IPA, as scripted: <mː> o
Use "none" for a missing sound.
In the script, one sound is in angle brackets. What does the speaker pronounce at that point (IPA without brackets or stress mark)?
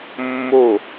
mː